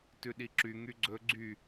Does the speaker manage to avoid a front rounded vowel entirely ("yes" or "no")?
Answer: no